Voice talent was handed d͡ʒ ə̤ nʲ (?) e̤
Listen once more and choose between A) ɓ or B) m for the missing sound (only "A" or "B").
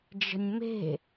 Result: B